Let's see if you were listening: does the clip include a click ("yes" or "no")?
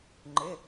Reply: yes